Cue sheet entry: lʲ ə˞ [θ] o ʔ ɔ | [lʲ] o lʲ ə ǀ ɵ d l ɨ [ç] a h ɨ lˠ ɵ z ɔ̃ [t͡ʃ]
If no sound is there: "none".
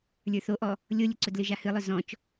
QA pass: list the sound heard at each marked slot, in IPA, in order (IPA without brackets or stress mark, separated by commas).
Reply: θ, lʲ, ʒ, t͡ʃ